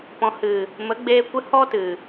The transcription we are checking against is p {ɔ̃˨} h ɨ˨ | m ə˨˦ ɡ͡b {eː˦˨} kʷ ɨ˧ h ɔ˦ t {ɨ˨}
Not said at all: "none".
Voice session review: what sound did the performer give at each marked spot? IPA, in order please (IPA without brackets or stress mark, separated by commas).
ɔ̃˨, eː˧, ɨ˨